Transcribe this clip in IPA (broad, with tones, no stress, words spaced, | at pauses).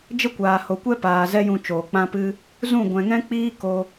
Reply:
d͡ʒə˦kʷaː˨ho˨ kʷɛ˦paː˨ zɛ˦jũ˧ t͡ʃoː˨k͡pã˦pɨ˦ | zũ˦˨ ɡʷɛ̃˨ŋɛ̃˦k͡piː˦ ko˧